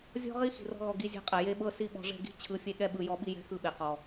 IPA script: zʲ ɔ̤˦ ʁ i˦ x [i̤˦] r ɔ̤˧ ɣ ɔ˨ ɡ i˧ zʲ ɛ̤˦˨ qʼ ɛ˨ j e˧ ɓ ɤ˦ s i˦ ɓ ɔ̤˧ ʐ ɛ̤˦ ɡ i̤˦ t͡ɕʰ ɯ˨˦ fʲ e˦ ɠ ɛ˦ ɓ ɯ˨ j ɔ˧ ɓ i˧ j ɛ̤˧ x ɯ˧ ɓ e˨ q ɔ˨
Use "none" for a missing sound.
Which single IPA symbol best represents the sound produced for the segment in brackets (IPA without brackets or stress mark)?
i̤˨